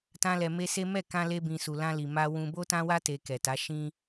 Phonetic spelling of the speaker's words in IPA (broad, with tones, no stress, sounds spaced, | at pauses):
t ã˧ l ɛ˨ m e˧ s e˦ m ɛ˦˨ k ã˧ l e˧ b ĩ˨ s u˨ l ã˧ l i˨ m a˧ w ũ˧ b o˦ t ã˦ w a˦ t e˧ k ɛ˨ t a˨˦ ʃ ĩ˧